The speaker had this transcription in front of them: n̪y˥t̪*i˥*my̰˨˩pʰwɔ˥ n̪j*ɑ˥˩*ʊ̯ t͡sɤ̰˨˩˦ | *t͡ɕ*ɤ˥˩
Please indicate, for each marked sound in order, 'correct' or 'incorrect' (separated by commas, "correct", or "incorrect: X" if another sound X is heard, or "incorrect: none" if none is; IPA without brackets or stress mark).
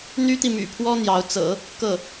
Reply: incorrect: i˨, incorrect: ɑ˧˥, incorrect: k